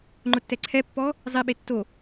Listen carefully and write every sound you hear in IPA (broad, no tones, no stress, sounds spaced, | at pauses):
ŋ͡ǃ ʊ tː ɛ ǀʰ ɛ pː ɔ | zˤ i ɓ e tː o